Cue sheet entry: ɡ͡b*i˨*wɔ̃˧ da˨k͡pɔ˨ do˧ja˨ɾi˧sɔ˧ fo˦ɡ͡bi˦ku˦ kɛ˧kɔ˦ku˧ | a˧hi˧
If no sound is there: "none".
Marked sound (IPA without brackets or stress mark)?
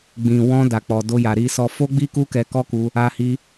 ĩ˨